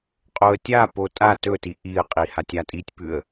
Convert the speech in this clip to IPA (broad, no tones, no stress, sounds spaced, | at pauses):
qʼ o ə̯ tʲ a p o tʼ a t ɵ t i ʔ i ə̯ qʼ i h a tʲ a tʼ i tʲ p ʉ ə̯